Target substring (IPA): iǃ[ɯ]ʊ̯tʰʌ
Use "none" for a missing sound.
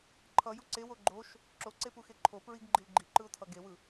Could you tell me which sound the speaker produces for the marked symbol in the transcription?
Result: ɯ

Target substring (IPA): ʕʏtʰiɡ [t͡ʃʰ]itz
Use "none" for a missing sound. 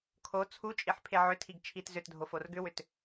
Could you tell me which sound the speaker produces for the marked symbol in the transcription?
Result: t͡ʃʰ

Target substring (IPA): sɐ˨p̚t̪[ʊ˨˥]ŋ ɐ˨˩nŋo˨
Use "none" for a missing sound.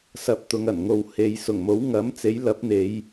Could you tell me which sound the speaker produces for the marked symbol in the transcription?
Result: ʊ˨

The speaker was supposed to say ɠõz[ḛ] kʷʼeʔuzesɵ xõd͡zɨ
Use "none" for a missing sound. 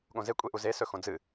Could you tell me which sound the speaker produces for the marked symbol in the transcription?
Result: e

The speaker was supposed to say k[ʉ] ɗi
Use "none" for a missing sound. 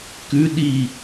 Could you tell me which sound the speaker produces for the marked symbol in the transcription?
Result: ʉ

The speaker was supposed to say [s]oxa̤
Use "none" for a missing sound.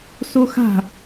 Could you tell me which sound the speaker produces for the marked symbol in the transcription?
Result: s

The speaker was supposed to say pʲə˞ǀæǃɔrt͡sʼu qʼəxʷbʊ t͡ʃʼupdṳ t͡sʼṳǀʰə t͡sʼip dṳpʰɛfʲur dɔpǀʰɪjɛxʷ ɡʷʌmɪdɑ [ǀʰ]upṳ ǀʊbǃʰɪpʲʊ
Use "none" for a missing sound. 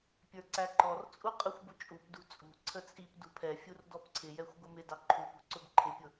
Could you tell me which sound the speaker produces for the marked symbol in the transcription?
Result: ǃʰ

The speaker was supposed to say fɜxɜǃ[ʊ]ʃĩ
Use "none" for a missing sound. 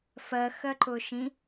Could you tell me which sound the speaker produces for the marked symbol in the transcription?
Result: ʊ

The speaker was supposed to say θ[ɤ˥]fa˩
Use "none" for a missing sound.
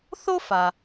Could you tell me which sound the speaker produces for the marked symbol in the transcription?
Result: o˥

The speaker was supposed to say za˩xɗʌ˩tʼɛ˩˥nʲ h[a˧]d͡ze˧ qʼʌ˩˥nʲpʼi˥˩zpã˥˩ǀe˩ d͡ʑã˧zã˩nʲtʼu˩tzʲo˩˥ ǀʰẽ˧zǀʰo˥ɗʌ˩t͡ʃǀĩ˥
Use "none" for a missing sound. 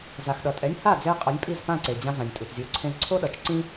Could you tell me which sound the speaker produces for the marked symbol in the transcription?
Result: a˥˩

